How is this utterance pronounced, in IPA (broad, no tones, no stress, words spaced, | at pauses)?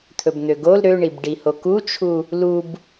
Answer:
t̪ʰɵbn̪øɡol ɾøɳibɖiho kut͡ʃʰu | lub